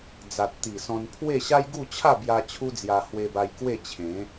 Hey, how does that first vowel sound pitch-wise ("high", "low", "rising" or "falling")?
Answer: low